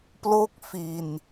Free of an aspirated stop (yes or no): yes